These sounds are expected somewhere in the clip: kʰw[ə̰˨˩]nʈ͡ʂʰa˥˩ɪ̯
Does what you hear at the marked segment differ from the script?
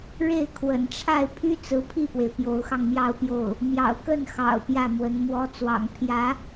no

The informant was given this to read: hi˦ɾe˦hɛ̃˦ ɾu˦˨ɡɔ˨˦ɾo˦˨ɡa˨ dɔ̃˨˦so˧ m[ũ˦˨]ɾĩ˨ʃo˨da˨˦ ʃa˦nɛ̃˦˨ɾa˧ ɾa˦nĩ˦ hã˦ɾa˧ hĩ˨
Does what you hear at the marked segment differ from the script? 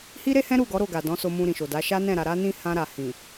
yes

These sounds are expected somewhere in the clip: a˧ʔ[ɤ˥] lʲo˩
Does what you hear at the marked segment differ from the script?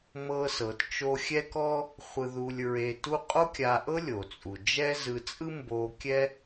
no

